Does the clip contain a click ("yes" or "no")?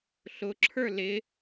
yes